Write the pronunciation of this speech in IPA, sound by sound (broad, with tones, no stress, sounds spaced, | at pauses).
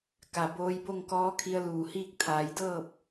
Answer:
k a˩ b oː˧ j b o˥˨ ŋ k ɔː˧˥ kʰ i˧ ə̯ l uː˧˩ h iː˥˨ k̚ t̪ʰ aː˩˧ j d ɤː˥˨ p̚